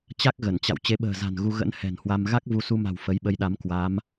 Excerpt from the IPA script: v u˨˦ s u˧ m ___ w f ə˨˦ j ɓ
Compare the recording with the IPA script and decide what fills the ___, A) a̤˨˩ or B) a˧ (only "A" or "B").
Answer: A